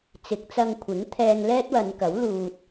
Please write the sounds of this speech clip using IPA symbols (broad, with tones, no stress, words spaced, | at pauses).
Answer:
t͡sɪ˨˥k̚t͡sɐ˧ŋkʷʰɪ˨˥ŋt̪ʰɛː˧ŋ lɛː˥t̚wɐ˨˧nkɐ˨˥w luː˧t̚